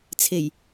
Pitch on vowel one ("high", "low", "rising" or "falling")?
low